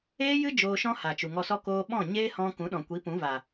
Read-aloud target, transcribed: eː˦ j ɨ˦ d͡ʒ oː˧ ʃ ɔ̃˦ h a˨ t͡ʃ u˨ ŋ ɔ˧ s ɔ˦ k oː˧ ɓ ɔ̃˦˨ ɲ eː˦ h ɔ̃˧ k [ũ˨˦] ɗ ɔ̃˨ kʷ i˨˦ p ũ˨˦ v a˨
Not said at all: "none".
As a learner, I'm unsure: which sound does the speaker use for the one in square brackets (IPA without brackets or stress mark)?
ũ˨˦